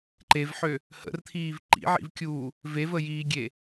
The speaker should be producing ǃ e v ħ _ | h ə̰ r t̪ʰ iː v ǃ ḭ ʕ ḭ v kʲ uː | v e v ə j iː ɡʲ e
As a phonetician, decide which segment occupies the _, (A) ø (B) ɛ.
A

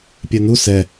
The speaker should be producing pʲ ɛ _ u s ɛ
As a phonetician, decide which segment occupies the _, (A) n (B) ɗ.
A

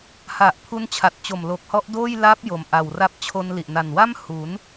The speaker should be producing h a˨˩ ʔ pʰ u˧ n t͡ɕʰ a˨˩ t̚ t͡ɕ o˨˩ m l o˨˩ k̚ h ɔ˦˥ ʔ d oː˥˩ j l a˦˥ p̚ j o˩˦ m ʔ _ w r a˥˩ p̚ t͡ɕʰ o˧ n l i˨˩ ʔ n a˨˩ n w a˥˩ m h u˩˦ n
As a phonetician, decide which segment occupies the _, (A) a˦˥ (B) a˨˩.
B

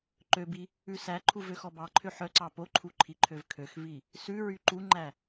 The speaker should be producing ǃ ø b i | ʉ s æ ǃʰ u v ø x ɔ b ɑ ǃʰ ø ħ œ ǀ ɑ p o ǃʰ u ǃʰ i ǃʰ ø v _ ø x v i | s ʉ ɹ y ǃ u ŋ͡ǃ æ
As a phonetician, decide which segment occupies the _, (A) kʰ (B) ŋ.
A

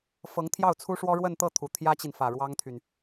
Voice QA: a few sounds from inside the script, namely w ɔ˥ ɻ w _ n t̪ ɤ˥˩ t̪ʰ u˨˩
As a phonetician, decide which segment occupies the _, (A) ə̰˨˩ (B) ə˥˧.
B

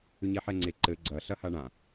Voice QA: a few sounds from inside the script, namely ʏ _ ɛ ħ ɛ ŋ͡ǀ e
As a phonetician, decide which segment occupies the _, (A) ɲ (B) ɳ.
A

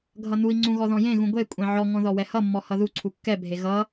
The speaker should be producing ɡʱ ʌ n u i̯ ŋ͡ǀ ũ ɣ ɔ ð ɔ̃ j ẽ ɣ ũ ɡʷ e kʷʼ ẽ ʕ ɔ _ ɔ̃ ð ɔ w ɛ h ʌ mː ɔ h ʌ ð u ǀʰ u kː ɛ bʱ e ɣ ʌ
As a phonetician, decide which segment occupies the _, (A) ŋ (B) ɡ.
A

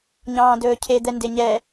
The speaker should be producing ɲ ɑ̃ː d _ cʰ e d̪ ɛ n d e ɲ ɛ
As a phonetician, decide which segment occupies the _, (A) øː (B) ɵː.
B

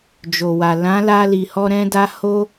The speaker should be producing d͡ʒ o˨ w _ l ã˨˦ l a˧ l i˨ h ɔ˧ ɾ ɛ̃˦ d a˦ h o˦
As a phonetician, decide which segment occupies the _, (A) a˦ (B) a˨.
B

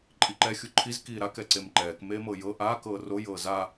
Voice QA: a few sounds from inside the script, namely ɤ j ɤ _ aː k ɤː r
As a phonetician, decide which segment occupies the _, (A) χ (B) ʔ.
B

